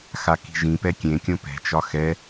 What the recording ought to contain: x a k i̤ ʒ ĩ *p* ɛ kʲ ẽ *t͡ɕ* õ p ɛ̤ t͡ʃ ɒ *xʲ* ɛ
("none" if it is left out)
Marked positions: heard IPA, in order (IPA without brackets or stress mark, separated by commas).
p, kʲ, x